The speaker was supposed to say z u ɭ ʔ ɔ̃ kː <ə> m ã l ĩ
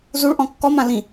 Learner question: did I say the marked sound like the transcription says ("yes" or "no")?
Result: no